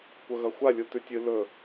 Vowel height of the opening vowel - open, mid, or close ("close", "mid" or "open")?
open